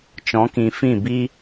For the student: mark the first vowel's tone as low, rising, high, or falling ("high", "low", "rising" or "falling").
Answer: rising